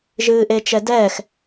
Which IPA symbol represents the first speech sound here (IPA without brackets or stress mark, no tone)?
ʒ